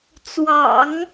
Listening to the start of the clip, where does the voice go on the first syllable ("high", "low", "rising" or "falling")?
low